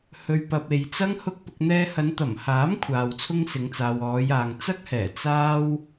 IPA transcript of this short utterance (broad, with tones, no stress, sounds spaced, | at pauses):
h ɵ˨ ɥ p ɐ˨ p̚ e˨ j t͡s ɐ˥ ŋ h ʊ˧ k̚ p ʊ˨ k̚ n̪ ɛː˧ h ɐ˨˧ n t̪ ɐ˨˩ m h aː˨˥ m kʷʰ aː˨ w t͡sʰ ʊ˥ ŋ s ɪ˨˧ ŋ t͡s aː˨ w ɔː˨˧ j aː˨ ŋ t͡s ɐ˥ k̚ h ɛː˨˩ t͡s aː˥ w